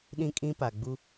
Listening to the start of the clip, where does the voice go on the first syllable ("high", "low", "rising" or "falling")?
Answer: high